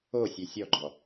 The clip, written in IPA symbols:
o sʲ ø sʲ ɔ ɡ͡ǃ ɔ

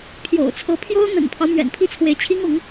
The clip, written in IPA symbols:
pʰ j o̰˨˩ ʊ̯ t͡sʰ ɤ˧˥ pʰ j o˥ ʊ̯ n̪ ə̰˨˩ n pʰ ɑ˦ ʊ̯ m ɥ ɛ̰˨˩ n pʰ i˥˩ t͡sʰ w e˧˥ ɪ̯ t͡ɕʰ i˥ ŋ ʊ˧˥ ŋ

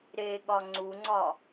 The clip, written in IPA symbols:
ɾ e ɠ ɒ ŋ͡ǀ u ŋ͡ǀ ɒ

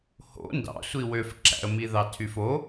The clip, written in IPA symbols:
h o̰ n d ɑ̰ sʷ i w ø f ǁ æ̰ ə̯ m i ð ɑ tʰ y f o

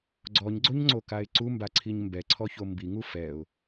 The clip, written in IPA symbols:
ɡ͡ǀ ɔ ɲ ɡ͡ǀ o ɲ ŋ͡ǀ o k a ɪ̯ ǀ u m b a ǀʰ i ɲ m b ɛ ǀʰ ɔ ç o m b i ŋ u f ɛ ʊ̯

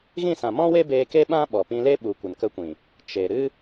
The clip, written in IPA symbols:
ɣ ĩ˦˨ s ã˨ m ɔ̃˦ w e˦ b eː˧ k e˦ ɓ ã˦ ɓ ɔ˨ p ĩ˧ l e˦ ɓ u˨ kʷ ə˨ n k ə˧ kʷ ĩ˨ | t͡ʃ e˨ ɾ ɨ˦

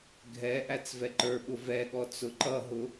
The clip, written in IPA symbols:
ɡʱ ɛ ʔ æ t͡s v ɛ ǃ ə˞ ɓ ʊ v ɛ ɠ ɔ t͡s ʊ ǃ ʌ ɦ ʊ

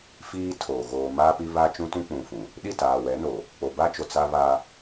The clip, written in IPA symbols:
f iː˦ tʰ oː˨ ɣ oː˨ m aː˦ p i˦ β a˦ t͡ʃ ũ˦ t ũ˦ k͡p ũ˨ f ũ˨ | ɗ i˦˨ t aː˨ w ɛ˨˦ n o˨ | k͡p o˨ b a˦ t͡ʃ o˨ t͡s a˦ β a˦

